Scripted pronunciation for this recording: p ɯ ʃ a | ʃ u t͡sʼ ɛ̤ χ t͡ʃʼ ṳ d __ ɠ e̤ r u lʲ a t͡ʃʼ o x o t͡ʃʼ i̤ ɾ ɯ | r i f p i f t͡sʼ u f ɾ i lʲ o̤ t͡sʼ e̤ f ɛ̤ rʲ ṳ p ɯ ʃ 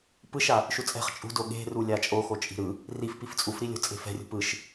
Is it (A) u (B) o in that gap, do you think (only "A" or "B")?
B